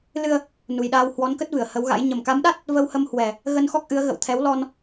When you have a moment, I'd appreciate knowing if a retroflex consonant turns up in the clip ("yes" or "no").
no